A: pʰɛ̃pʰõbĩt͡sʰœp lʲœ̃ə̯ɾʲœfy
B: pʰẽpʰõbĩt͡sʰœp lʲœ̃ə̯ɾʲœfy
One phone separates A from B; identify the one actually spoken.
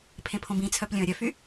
B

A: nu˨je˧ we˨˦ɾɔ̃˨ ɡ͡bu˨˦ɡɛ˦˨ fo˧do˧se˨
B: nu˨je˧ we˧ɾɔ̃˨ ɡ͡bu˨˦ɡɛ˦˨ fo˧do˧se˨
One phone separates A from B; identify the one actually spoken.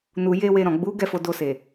B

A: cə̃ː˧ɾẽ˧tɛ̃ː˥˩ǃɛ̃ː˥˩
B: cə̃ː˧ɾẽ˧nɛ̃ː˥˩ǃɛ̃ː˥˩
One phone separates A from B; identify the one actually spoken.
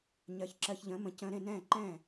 B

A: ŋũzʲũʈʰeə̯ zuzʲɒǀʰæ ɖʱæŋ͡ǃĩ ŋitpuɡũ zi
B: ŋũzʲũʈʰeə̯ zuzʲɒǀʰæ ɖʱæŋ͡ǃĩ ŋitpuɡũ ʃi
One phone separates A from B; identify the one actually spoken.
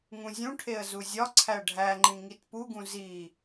A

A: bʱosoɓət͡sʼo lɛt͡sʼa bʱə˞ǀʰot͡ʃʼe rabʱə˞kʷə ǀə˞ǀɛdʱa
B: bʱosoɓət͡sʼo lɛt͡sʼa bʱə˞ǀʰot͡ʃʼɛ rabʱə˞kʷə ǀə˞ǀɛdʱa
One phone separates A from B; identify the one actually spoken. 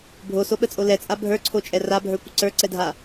B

